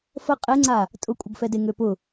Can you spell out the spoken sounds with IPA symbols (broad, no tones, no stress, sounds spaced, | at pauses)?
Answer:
f ə qʼ e ŋ͡ǀ a | tʼ ʊ kʷʼ ə ɡ f ɛ d e ŋ ø p ʊ